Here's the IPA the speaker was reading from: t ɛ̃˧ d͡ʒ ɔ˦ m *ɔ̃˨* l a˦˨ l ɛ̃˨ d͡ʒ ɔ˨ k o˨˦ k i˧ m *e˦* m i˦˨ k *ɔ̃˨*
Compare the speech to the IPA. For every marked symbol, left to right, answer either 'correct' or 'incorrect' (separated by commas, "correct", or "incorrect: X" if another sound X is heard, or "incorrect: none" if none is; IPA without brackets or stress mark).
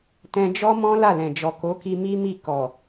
incorrect: ɔ̃˦, incorrect: i˦, incorrect: ɔ˨